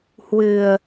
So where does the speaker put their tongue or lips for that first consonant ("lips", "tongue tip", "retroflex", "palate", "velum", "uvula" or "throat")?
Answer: throat